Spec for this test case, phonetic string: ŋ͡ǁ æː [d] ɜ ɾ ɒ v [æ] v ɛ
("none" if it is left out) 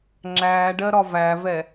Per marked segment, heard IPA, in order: ɖ, æ

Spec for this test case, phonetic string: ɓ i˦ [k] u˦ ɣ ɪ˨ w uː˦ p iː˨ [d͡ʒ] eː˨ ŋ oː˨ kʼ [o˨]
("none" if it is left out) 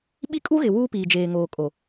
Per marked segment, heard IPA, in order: kʼ, d͡ʒ, o˨

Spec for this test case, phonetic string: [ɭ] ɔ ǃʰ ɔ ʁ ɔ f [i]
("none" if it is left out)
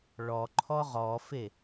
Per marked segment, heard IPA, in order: ɭ, e

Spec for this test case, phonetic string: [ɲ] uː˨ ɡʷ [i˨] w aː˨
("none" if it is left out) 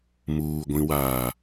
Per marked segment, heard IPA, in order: m, ĩ˨

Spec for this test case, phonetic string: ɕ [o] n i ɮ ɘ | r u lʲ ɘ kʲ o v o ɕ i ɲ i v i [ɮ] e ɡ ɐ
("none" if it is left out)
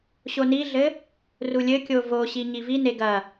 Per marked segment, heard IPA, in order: o, n

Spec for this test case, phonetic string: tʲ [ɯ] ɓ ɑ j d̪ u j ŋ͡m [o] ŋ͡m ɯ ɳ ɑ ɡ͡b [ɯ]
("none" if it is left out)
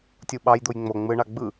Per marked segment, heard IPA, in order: u, o, ɯ

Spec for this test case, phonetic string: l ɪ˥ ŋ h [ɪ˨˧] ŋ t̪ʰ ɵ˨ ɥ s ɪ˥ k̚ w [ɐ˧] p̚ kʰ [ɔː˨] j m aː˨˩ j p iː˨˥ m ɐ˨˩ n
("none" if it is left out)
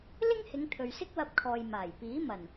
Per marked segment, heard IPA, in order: ɪ˨˧, ɐ˧, ɔː˨

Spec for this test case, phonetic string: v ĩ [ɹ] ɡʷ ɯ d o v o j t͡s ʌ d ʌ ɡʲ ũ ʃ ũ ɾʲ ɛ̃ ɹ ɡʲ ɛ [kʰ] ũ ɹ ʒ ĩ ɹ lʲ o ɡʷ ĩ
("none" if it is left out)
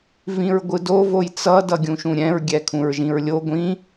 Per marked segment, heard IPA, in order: ɹ, kʰ

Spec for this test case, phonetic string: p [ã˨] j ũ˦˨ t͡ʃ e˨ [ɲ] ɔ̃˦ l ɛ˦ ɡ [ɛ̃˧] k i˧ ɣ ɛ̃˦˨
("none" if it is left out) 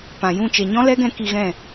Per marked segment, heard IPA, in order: ã˨, ɲ, ɛ̃˧

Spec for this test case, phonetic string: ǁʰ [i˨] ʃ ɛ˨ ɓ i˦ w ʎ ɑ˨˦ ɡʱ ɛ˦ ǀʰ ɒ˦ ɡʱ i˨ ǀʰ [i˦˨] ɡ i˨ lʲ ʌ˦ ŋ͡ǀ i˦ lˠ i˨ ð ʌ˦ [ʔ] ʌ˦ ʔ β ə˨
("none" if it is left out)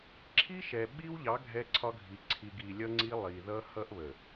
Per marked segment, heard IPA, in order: i˦, i˨, h

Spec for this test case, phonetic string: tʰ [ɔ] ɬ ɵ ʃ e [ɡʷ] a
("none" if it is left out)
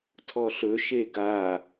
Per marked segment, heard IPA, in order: ɔ, ɡ

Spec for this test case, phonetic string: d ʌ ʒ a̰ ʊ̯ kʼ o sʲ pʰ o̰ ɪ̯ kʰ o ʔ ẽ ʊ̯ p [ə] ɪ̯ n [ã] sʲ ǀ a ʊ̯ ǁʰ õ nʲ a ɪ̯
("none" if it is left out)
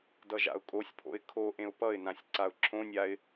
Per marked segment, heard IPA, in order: ʌ, ã

